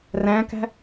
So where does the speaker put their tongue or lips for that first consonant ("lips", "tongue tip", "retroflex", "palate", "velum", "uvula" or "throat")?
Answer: tongue tip